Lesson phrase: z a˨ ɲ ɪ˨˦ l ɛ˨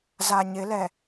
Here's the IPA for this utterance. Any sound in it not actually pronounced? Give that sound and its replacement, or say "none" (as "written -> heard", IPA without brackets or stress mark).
none